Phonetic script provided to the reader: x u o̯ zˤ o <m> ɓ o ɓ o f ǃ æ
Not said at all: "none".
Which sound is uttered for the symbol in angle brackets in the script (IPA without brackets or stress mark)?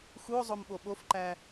m